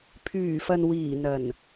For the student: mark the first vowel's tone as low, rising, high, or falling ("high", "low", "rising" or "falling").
low